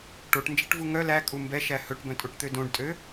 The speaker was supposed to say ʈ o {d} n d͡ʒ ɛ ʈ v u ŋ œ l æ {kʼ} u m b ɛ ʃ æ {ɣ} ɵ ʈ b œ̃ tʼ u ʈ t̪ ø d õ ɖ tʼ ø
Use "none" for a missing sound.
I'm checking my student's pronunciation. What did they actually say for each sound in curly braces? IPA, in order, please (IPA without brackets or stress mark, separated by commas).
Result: ʈ, kʼ, h